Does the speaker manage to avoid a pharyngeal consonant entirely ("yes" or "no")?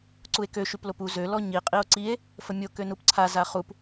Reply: yes